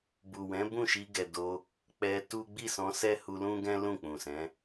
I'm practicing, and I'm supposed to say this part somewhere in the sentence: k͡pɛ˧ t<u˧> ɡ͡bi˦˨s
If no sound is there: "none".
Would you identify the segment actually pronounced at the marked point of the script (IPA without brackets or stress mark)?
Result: u˦